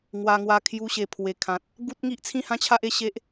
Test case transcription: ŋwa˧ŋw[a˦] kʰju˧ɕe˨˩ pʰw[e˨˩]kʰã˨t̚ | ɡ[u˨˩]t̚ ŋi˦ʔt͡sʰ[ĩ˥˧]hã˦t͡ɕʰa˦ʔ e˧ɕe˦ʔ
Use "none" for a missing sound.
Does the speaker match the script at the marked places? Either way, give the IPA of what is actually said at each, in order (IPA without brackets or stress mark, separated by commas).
a˧, e˨˩, u˦, ĩ˥˧